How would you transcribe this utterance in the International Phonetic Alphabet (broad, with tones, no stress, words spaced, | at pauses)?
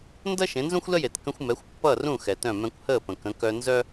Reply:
ndʌ˥ ʃẽ˩˥nzũ˥xʷlə˥je˩t kə̃˧xʷmɛ˩˥xʷ pːʌː˥˩r ũ˥˩ xɛ˩tœ̃˥˩ mɛ̃˧kʷhəː˥˩pə̃˩ kə̃˩˥kœ˧ nzœ˥